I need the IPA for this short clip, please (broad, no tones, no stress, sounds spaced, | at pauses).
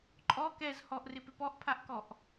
ǃʼ ɔ k ɛ z h ɔ ʔ r ɪ p ɪ p ɔ ʔ pʰ a ʔ k ɔ ʔ